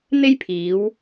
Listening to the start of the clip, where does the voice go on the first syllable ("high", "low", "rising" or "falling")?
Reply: high